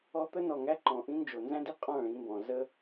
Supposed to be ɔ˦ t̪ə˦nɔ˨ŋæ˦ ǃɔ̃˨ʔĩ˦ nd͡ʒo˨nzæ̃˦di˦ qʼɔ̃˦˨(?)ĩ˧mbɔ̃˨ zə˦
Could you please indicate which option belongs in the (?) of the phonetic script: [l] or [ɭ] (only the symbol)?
ɭ